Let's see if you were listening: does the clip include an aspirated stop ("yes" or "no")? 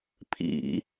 yes